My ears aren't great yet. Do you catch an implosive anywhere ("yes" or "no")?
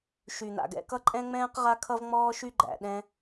yes